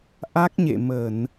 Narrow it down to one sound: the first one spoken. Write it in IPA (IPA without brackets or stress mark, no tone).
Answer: ʔ